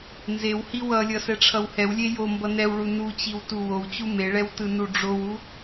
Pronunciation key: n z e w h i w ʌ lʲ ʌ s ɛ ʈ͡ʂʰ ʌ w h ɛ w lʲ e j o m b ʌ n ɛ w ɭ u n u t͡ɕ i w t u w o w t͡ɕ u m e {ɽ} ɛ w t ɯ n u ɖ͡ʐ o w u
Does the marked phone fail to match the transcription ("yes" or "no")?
yes